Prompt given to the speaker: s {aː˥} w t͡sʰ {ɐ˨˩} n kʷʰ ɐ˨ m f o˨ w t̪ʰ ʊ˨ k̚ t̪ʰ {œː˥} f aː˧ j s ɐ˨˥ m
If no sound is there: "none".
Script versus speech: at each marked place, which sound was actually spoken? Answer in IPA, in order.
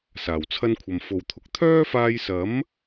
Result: aː˨˩, ɐ˥, œː˥

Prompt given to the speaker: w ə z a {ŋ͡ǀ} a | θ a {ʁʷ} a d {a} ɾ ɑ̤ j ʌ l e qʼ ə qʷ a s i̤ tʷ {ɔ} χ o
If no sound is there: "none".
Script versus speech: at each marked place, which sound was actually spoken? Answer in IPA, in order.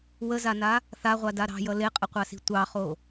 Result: n, ʁʷ, a, ɑ

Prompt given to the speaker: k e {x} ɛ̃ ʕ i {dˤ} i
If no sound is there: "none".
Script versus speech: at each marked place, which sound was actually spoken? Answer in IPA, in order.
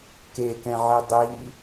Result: k, dˤ

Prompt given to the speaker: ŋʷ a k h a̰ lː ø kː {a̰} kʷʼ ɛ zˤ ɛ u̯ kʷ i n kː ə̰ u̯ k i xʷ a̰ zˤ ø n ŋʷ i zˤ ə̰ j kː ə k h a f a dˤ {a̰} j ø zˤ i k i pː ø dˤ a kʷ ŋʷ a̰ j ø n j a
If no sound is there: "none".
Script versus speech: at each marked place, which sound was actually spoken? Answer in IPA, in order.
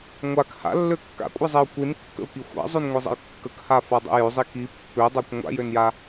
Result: a̰, ə̰

